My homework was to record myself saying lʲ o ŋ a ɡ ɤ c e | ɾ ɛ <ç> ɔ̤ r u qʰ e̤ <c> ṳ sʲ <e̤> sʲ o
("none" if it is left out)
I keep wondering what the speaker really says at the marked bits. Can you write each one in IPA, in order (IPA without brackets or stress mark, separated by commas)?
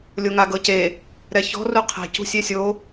ç, c, e